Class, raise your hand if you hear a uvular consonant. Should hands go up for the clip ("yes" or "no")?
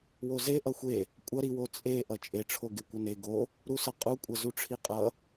yes